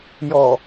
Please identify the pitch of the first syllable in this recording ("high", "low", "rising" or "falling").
low